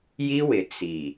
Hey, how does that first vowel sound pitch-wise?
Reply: high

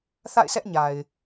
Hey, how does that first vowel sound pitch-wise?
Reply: falling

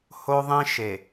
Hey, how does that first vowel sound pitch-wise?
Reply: high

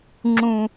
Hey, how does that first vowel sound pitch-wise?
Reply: low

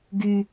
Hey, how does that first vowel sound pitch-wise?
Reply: low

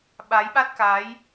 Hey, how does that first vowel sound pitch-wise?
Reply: rising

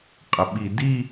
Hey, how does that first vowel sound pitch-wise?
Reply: low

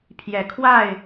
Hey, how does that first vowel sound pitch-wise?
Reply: rising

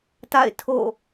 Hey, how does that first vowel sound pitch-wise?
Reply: falling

